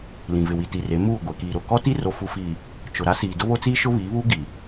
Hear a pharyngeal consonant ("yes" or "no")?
no